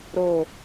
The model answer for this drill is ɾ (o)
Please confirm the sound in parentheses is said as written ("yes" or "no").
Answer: yes